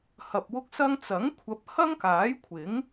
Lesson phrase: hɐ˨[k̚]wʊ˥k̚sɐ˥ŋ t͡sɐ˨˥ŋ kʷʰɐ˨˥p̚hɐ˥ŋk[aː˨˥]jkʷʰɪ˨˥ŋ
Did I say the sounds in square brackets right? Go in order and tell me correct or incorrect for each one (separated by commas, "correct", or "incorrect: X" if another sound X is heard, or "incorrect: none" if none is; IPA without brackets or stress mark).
incorrect: p̚, correct